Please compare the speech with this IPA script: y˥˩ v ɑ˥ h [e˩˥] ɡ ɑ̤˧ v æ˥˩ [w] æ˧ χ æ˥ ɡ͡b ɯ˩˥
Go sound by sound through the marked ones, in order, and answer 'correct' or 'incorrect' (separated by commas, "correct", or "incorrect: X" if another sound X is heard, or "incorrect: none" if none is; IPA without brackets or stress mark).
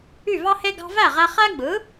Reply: incorrect: e˥, incorrect: ʁ